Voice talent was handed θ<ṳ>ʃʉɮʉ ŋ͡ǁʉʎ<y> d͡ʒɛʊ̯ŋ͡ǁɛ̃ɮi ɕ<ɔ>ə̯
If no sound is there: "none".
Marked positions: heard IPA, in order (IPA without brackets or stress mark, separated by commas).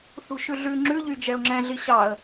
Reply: ṳ, y, ɑ